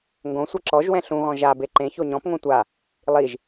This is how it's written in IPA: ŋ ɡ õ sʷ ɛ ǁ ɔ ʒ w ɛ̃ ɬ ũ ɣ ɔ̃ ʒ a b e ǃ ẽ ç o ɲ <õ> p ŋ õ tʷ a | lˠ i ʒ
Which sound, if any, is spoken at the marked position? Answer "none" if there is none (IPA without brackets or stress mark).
ɔ̃